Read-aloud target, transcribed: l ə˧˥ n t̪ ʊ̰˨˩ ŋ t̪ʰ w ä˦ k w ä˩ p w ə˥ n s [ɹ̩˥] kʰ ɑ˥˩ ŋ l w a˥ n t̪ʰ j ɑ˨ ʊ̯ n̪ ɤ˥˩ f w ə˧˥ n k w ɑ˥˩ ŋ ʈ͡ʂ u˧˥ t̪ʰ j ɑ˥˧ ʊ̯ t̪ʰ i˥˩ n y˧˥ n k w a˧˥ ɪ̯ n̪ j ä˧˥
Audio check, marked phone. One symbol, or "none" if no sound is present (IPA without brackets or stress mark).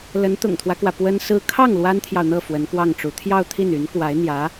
ɹ̩˥